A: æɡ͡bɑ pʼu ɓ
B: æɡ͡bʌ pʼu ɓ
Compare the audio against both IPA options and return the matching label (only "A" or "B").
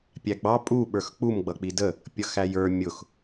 A